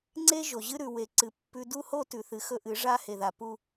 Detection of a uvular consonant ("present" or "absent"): absent